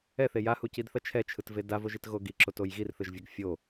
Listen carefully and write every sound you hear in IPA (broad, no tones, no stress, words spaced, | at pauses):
ɛθe jahucidθʌ t͡ʃʰɛt͡ʃʰɯtve davoʒitɣo ɡiǁotoj ɣirθɯʒvʲʌɡ fʲo